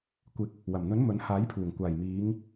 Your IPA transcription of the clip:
kʷ ɪ˨˥ k̚ | w ɐ˨˩ m n̪ ɵ˨˥ n m ɵ˨˥ n h aː˨˥ j pʰ uː˨˩ ŋ kʷ aː˨˩ j m iː˨˧ ŋ

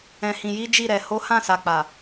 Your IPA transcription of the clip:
ɛ̃˨ h ĩ˨ j i˨˦ d͡ʒ i˦˨ ɾ ɛ˨ h o˨˦ h ã˦˨ s a˨ k͡p a˨

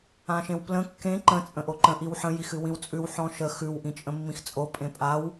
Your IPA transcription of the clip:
ã ʃ ẽ w p l ə̃ kː ẽ ǃ ə̃ t͡sʼ ə̃ ʔ o ǃ ə̃ ʔ i w ħ ə̃ j i x ɨ w ĩ w t͡sʼ ʉ w ħ ɔ̃ ʃ ə x ʉ w ʔ ĩ t͡ʃʼ ə̃ mː ĩ x t͡sʼ o pʼ ẽ pʼ a w

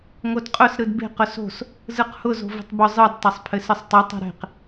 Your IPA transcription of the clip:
ŋ o d qʼ ʊ s ɾ ɯ d b e̤ q ʊ s o̤ s | z ɯ q h ʊ z o̤ v i̤ tˤ b ʊ zˤ ɯ d tˤ e sˤ pʰ ɘ s ɯ sˤ tˤ ɯ tˤ i̤ ɾ e̤ q

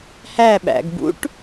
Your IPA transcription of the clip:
h æ ɓ æ̰ ɡ b ṵ ʈ

